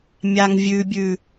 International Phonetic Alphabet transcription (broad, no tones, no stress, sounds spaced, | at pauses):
mʲ a ŋ vʲ ʉ bʲ ʉ